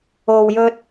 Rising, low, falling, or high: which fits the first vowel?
low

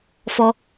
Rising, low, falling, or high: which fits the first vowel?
high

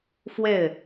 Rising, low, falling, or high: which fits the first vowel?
falling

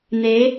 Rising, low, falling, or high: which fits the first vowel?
rising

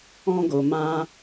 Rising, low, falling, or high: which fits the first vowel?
high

